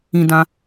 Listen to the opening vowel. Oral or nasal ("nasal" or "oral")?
nasal